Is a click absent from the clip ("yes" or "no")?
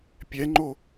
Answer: no